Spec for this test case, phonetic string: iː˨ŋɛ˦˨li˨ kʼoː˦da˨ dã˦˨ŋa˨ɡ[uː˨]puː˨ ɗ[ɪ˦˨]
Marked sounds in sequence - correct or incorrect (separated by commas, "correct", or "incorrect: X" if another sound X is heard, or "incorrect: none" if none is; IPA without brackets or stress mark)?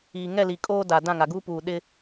incorrect: uː˦, incorrect: ɪ˦